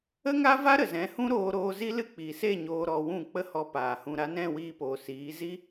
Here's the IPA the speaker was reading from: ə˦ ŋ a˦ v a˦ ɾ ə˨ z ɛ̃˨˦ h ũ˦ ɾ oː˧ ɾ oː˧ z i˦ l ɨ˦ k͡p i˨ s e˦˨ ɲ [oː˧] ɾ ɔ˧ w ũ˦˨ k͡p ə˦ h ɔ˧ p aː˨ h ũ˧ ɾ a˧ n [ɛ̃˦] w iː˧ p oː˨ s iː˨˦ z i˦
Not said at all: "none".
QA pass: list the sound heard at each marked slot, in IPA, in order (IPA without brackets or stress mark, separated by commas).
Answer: oː˧, ɛ̃˦˨